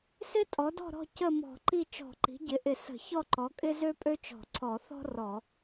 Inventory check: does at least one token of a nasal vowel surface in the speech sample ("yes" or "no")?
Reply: no